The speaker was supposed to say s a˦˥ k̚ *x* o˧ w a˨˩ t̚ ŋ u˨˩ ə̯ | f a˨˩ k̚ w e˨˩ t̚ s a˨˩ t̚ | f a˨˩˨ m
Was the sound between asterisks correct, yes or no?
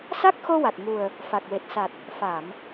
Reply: yes